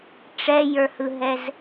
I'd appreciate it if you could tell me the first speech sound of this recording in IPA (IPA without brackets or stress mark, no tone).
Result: ʈ͡ʂ